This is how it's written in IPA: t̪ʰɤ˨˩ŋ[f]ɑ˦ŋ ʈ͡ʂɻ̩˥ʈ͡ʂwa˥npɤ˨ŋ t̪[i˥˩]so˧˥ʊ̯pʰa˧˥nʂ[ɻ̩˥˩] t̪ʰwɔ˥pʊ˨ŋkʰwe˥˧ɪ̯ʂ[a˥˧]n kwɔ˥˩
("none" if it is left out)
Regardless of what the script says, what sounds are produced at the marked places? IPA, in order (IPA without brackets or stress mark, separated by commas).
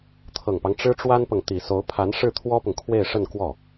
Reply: p, i˨˩, ɻ̩˥˩, ə˥˧